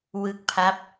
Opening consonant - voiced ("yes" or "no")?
yes